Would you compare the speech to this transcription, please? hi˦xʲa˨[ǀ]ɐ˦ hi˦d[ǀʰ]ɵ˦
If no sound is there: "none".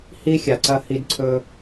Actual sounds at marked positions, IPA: ǀ, ǀʰ

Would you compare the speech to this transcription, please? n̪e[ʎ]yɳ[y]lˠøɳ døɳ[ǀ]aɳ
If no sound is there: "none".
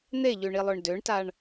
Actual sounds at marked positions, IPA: ʎ, i, t

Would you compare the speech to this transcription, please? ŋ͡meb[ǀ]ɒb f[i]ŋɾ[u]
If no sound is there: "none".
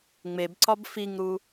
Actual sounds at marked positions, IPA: ǀ, i, u

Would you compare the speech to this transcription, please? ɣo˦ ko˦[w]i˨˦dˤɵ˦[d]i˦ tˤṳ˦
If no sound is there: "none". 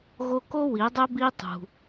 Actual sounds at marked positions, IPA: w, b

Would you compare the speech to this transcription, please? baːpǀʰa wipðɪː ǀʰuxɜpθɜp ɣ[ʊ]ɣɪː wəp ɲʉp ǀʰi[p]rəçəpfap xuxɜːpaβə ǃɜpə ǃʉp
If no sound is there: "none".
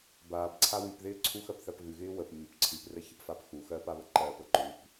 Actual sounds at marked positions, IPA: ʉ, p

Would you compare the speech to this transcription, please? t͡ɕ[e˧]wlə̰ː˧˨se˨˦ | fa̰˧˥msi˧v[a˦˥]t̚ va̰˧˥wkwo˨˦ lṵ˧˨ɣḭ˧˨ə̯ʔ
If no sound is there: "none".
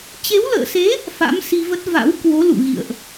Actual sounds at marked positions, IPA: e˨˦, ə˦˥

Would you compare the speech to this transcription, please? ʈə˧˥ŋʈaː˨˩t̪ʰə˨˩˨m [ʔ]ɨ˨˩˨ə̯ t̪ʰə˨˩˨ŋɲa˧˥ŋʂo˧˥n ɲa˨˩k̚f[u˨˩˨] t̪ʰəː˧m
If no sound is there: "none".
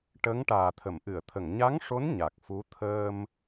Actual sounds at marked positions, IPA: ʔ, u˧˥

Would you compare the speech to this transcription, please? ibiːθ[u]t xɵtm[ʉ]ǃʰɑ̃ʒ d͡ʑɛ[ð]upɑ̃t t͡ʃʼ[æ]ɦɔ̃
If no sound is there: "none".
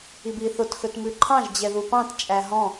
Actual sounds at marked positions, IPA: o, ʉ, ð, æ

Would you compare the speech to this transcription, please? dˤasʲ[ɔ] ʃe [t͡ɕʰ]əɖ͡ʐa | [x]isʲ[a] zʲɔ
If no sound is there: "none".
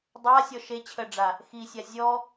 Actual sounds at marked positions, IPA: ɔ, t͡ɕʰ, x, a

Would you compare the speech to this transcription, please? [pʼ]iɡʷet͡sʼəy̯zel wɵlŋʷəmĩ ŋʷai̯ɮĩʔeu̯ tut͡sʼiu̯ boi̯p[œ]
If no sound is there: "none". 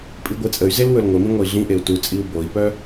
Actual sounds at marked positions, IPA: pʼ, œ

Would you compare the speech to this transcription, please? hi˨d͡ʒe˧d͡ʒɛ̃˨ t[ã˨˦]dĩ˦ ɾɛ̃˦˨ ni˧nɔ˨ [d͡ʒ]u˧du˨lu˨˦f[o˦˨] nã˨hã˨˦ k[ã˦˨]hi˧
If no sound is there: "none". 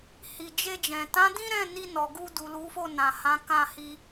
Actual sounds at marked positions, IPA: ã˨˦, ɡ, o˦˨, ã˦˨

